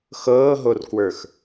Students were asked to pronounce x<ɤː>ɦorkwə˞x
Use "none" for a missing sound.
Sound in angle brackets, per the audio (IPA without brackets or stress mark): ɤː